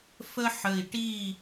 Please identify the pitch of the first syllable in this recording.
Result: high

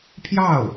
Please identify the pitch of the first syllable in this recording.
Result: falling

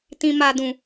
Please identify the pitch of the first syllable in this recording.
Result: low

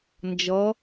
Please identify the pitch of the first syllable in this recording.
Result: rising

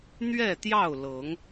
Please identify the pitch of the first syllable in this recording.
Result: falling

